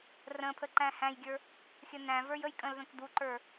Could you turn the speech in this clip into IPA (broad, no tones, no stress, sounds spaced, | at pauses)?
r ə̃ pʰ ə ǃ æ̃ h æ̃ j ɡʲ ə˞ | xʲ ə n æ̃ v ə˞ j ə j kʼ ə̃ l ð ə̃ k d̪ u ǃ ə˞